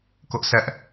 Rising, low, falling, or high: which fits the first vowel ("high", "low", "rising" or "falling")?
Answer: high